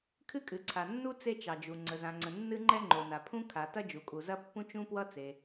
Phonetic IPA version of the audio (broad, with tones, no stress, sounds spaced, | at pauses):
kʰ ɨ˥ kʼ ɨ˩ ǀʰ a˩ nː u˥ t͡s e˥ t͡ʃ ɑ˩ d͡ʒ u˩ ŋ͡ǀ ə˩ z ã˩ ŋ͡ǀ ə̃˩ nː ɨ˥ ŋ͡ǃ ɛ˥ ŋ͡ǃ o˩ n a˩ pʰ ũ˥ kʰ a˩ t ɐ˥ d͡ʒ u˩ kʼ u˩ z ɐ˥ pː ũ˥ t͡ʃ ũ˥ p w ʌ˥ t͡s e˩